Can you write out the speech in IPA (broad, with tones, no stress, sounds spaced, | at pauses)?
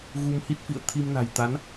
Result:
ɣ u˧ m h i˦˥ t̚ f ḭ˧˨ ə̯ t̪ʰ i˧ m n a̤˨˩ j t̪ a˨˦ n